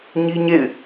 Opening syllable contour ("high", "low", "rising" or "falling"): high